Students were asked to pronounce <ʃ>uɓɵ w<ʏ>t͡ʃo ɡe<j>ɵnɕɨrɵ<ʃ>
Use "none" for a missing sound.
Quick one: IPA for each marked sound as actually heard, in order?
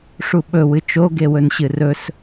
ʂ, ɨ, w, s

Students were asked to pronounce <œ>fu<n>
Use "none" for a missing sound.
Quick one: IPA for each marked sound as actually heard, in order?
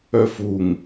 œ, ŋ

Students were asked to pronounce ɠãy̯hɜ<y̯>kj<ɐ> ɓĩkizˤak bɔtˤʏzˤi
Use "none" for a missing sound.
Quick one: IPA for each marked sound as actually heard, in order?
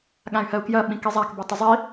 u̯, ɐ

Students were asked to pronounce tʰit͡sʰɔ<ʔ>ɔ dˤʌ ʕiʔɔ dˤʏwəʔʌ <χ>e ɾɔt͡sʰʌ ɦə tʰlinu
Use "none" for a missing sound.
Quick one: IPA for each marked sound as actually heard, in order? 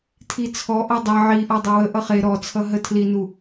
ʔ, χ

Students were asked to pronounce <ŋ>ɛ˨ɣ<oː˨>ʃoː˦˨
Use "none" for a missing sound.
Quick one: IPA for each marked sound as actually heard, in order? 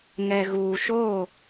ŋ, uː˨

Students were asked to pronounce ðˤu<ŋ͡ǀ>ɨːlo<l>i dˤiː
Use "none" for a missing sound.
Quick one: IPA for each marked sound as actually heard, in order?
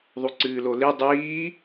ǀ, l

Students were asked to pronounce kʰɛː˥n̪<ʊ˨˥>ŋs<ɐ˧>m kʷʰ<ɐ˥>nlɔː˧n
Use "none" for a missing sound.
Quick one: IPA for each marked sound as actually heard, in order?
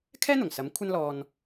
ʊ˨˩, ɐ˨˥, ɐ˥

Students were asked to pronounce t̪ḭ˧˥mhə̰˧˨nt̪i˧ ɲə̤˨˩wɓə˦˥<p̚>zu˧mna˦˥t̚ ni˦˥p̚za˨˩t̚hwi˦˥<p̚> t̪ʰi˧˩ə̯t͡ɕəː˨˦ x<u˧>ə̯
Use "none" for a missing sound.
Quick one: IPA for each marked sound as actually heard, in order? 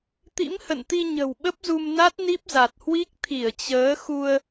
p̚, k̚, u˧

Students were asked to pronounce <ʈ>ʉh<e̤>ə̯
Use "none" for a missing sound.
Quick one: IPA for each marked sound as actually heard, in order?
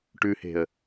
ʈ, e̤

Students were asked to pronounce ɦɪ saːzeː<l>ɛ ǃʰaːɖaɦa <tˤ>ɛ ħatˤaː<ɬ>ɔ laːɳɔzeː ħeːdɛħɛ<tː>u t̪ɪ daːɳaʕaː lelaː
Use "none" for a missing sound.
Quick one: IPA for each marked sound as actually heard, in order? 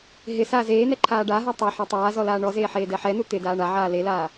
n̪, tˤ, z, n

